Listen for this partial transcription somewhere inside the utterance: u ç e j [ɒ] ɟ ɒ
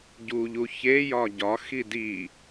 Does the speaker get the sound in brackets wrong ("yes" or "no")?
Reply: no